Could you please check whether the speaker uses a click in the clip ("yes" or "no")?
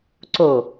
yes